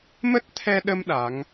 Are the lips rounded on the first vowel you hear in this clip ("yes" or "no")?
no